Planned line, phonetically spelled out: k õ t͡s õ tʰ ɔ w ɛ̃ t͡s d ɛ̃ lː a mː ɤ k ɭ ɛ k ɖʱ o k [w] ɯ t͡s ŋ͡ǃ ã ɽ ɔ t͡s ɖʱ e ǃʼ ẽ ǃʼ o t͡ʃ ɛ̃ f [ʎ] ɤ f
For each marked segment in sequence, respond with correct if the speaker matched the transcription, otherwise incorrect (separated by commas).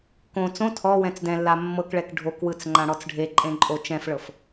correct, incorrect